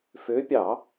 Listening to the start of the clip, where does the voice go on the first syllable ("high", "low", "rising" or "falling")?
rising